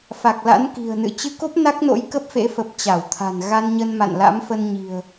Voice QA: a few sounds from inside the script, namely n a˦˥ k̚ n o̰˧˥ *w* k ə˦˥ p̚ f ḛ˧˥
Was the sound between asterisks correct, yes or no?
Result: no